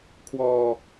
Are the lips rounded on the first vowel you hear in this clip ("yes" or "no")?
yes